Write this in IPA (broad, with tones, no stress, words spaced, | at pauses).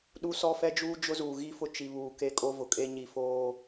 ɗu˦sɔ˦fɛ˦d͡ʒuː˦ d͡ʒʊ˦zuː˨ɣi˦fʊ˦ t͡ʃi˨βuː˨ ke˦kʼo˦vʊ˨kʼe˦ ɲi˨foː˦